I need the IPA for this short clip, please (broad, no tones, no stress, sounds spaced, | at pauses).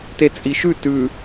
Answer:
t e t͡sʼ i ʃ ʉ t ʉ